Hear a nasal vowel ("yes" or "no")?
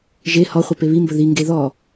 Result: no